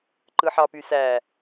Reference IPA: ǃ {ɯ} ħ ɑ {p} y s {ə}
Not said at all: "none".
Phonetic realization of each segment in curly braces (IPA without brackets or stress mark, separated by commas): ɯ, p, æ